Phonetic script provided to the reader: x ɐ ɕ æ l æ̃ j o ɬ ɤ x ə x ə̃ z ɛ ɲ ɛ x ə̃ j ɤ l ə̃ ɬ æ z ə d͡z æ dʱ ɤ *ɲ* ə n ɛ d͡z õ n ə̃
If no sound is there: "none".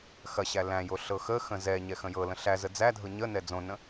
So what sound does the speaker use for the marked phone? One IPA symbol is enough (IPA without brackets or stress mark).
ɲ